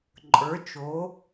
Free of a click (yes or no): no